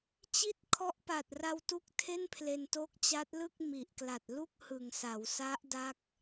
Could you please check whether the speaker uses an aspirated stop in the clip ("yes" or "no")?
yes